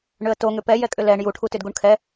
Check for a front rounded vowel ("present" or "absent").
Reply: present